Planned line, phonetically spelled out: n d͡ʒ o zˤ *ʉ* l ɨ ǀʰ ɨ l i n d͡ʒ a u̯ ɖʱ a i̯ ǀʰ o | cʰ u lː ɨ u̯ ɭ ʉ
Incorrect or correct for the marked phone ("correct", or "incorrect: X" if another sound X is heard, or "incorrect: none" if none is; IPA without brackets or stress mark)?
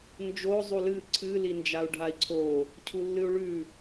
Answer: incorrect: u